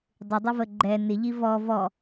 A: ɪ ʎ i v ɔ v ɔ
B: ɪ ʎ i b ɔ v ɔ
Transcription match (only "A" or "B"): A